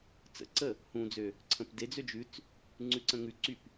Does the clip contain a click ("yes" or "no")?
yes